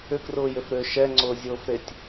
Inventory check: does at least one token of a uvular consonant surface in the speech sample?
no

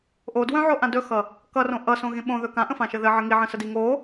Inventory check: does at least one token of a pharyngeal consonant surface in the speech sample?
yes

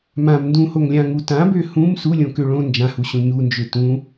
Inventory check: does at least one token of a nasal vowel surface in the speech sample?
yes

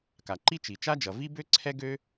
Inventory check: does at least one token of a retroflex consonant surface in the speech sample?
no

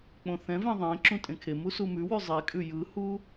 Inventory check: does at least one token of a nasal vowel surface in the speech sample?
yes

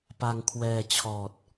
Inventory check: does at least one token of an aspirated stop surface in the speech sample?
yes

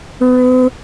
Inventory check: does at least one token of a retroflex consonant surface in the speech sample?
yes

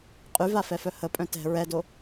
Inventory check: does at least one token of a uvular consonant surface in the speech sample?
yes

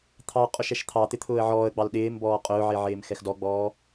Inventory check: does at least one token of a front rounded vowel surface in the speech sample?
no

